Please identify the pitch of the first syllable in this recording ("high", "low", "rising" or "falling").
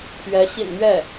rising